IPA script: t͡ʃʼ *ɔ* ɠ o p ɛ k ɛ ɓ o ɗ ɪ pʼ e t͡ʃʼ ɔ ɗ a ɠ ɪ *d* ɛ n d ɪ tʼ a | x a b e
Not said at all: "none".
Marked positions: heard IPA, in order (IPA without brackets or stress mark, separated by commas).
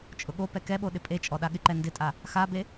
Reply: ʊ, ǃ